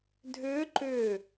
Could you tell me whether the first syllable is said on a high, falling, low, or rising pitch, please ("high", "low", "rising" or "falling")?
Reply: rising